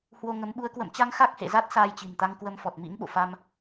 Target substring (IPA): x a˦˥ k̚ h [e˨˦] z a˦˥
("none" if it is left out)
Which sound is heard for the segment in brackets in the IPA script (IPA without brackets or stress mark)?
ḛ˧˨